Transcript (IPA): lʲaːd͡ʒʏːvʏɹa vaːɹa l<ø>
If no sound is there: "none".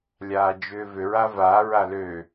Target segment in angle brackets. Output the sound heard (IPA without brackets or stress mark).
ø